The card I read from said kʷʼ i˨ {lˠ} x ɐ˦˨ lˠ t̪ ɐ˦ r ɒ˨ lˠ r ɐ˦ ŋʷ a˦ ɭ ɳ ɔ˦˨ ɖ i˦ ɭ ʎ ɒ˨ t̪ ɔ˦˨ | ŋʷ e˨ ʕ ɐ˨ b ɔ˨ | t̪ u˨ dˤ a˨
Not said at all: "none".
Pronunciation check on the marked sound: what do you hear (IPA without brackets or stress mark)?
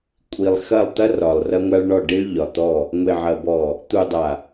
lˠ